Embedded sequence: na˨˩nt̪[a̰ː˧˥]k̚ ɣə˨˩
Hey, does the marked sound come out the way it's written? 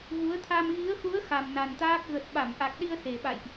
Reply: no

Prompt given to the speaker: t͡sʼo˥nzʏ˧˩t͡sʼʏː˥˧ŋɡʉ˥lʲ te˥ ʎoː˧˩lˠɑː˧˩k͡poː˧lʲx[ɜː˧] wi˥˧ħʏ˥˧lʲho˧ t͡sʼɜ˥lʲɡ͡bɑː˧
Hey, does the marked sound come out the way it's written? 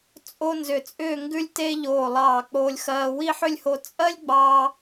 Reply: yes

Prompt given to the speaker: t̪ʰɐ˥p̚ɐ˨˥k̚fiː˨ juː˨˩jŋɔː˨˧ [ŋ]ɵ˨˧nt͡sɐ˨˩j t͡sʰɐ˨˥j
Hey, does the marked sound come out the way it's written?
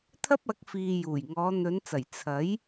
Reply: no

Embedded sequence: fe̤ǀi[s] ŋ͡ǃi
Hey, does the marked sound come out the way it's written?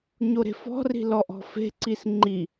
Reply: yes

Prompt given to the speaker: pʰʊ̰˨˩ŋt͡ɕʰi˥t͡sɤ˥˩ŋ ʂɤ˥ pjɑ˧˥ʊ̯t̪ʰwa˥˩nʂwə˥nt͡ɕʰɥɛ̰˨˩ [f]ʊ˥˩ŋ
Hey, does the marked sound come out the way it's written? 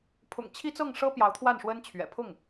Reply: no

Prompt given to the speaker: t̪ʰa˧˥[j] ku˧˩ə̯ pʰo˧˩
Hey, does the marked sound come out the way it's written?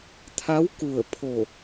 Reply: no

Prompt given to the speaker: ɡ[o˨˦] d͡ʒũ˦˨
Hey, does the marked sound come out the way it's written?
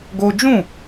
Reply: no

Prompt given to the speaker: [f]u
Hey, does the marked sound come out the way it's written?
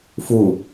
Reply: yes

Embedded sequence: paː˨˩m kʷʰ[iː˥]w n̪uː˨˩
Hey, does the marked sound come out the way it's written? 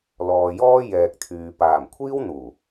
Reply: yes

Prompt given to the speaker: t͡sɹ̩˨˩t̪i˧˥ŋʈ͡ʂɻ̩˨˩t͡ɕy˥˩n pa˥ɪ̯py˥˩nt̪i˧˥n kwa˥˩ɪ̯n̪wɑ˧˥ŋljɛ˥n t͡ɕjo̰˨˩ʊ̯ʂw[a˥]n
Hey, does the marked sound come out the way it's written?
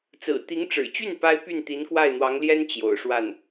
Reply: no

